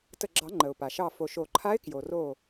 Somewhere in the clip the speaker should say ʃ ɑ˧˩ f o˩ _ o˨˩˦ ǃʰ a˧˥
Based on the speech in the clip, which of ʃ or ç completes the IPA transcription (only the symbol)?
ʃ